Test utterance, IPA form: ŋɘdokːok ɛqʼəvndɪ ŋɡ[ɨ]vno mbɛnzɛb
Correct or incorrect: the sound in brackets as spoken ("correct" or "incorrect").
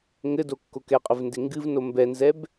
correct